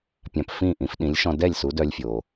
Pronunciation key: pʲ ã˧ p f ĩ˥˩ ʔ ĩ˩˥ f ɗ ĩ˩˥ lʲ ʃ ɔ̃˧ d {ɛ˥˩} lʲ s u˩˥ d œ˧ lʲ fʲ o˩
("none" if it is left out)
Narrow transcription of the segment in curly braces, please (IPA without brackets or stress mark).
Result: ɛ˥˩